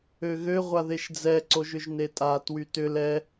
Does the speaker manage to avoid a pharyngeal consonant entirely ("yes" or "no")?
yes